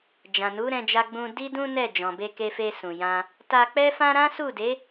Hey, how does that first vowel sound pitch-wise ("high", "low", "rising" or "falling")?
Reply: low